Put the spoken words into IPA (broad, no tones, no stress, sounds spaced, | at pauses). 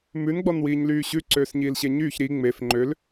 m ʉ n ɡ͡b ɔ n w iː ɲ l yː ɕ ʉ ǀ øː s ɲ iː l ɕ e ɲ yː ç ɾ i ŋ͡m e f ŋ͡ǃ ø l